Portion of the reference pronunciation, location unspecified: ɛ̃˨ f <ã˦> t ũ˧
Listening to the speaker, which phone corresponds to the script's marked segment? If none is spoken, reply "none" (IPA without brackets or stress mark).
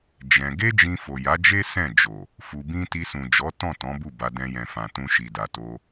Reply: ã˨